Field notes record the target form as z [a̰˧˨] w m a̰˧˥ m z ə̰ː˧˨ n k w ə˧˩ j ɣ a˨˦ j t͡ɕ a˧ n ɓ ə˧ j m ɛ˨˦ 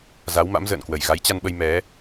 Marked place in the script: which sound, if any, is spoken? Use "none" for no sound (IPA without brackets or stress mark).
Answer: a˨˦